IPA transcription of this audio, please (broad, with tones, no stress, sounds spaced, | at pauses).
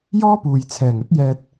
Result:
j ɔː˥ p uː˨ j t͡sʰ ɛː˨˩ ŋ ɵ˥ t̚ j ɛː˧ t̚